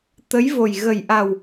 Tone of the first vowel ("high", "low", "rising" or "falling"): rising